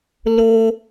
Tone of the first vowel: high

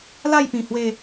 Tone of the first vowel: falling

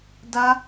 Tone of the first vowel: high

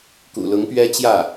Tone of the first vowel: low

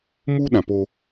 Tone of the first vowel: high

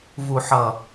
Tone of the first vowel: low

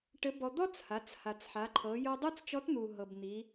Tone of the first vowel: rising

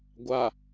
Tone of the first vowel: low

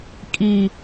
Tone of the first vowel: low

